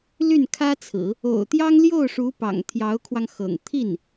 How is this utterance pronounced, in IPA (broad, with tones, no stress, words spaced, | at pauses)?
ly˥˩nkʰä˥t͡sʰɹ̩˨˩˦ | o̰˨˩ʊ̯ t̪jɑ˥ŋljo˥˩ʊ̯ʂu˧˥ pɑ̰˨˩ŋt̪ʰjɑ˧˥ʊ̯kʰwɑ˧ŋ xɤ̰˨˩ŋ t̪ʰi˥˩n